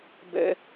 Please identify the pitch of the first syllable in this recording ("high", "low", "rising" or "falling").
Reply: high